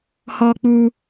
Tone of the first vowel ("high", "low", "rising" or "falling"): high